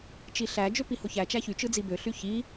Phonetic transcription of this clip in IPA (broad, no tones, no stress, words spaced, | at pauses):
t͡ʃiɬæ d͡ʒøpihoçæ t͡ʃæçy t͡ʃɯd͡zibø ɬyçi